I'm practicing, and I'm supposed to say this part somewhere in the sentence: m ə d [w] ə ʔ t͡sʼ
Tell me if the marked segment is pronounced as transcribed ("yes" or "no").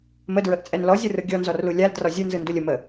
no